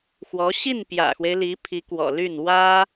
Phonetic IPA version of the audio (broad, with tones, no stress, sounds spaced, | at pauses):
x w ɔ˧˥ ɕ i˥˩ n p j ä̰˨˩ x w e˦ ɪ̯ l i˧˥ pʰ i˧˥ k w ɔ̰˨˩ l y˥˩ n w ä˥